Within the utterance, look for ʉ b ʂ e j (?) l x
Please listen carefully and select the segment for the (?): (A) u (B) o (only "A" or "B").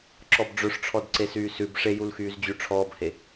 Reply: A